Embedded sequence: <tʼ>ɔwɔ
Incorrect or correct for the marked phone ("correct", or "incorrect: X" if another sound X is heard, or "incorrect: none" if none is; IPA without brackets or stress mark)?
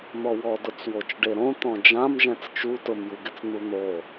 incorrect: n̪